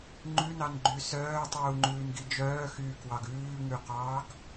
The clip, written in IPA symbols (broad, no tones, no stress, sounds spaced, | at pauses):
ŋ͡ǃ ʉ n ɑ n ɡ͡ǃ y s œː tˤ uː ŋ͡ǃ ʉː n ɡ i d͡ʒ œː x yː k w ɑ ɡ ʉː ŋ ʉ q ɑː ɡ